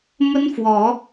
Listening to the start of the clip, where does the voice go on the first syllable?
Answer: high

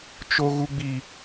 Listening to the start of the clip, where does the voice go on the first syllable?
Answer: high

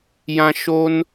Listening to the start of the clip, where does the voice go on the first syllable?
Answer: low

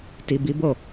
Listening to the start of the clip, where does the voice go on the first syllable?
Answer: low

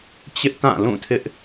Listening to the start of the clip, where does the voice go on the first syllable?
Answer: high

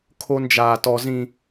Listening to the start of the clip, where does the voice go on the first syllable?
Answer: high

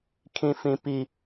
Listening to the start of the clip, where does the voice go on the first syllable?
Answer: high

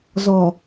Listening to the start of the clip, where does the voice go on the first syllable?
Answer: low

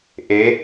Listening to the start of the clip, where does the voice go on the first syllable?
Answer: rising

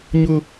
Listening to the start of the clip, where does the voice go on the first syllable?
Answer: high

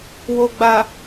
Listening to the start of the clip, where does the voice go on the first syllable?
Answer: low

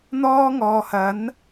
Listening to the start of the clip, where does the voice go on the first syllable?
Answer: high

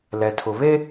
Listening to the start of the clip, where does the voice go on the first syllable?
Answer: low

